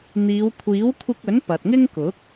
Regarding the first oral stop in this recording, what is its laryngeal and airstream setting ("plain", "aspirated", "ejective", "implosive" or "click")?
aspirated